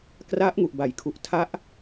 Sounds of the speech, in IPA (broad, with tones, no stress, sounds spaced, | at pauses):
k r a˦˥ ʔ ŋ u˨˩ ʔ b a˨˩ j kʰ u˨˩ ʔ tʰ a˦˥ ʔ